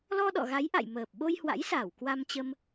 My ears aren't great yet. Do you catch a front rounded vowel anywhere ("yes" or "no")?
no